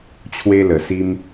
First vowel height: mid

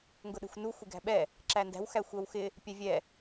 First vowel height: high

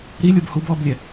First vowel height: high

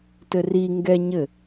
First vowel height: mid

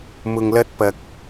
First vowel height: high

